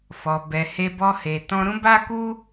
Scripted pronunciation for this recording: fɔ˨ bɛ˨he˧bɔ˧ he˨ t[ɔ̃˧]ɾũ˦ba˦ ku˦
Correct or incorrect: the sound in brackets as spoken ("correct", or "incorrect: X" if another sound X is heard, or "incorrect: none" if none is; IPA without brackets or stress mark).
correct